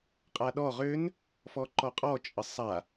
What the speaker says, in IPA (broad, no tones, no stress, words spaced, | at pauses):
qʼaɗɔ ʁʏn | fɔǃɔqʼɔ t͡ʃʼəsˤa